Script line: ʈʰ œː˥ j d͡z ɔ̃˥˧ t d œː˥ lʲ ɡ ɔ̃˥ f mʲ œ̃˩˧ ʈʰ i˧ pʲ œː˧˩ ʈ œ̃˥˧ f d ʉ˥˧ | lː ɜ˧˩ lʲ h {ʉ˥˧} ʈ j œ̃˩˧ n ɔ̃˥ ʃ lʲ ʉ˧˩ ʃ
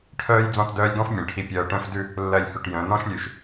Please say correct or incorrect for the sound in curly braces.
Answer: incorrect